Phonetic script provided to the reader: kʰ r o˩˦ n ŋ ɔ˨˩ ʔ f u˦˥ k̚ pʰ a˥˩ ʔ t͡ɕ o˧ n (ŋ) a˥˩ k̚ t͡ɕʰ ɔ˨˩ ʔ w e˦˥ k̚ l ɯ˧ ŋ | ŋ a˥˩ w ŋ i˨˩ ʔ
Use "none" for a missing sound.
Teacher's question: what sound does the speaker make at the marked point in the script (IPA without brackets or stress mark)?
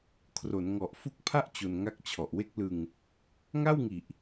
ŋ